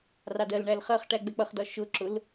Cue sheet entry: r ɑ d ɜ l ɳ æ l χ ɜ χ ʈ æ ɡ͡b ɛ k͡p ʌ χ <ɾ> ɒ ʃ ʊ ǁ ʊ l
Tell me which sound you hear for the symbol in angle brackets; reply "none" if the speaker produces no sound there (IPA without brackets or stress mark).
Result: d